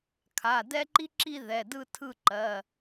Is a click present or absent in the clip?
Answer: present